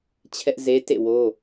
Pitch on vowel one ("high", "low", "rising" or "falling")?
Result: high